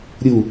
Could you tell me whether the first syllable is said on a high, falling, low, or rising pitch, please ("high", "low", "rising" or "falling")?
falling